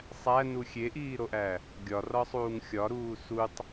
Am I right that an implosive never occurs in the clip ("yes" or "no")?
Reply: yes